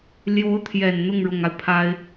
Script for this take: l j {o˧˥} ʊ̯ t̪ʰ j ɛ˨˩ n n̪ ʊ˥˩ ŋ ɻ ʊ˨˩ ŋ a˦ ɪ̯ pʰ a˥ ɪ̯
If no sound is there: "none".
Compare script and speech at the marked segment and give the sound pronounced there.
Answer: o˧˥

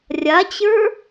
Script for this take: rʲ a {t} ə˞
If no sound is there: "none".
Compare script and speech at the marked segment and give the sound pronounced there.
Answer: t͡ɕ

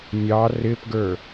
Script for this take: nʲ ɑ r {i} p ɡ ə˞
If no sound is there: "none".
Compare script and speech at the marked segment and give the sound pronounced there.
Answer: ɪ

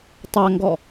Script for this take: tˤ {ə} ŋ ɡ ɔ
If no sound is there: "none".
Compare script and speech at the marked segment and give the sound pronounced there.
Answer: ɐ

